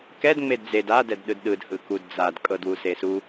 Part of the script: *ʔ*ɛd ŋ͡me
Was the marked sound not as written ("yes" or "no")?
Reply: yes